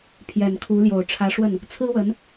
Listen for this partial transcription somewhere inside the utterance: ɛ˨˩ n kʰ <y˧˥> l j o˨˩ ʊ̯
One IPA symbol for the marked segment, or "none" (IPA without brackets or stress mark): u˧˥